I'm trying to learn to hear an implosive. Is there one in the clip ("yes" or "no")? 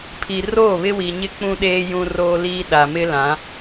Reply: yes